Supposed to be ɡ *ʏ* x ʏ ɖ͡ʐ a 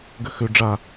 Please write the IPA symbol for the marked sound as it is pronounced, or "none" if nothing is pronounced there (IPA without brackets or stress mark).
ʏ